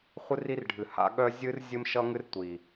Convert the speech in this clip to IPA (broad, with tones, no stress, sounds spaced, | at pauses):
χʷ ɨ˦ r i˦ r ɖʱ ɨ˨ h a̰˦ ɠ œ˦ zʲ ɨ˦ r zʲ ɨ˦ m ʃ ʌ˦ ŋ ɨ˦ r tʷ i˨